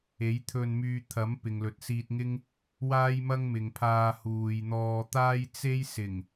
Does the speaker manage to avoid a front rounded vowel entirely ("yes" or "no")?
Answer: no